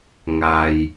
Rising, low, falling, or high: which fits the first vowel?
low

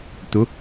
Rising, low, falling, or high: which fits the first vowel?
rising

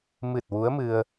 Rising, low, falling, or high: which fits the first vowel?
low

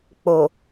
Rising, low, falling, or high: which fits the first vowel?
low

